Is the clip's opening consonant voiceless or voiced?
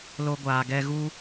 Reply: voiced